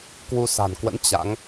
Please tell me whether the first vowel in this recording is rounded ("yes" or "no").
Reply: yes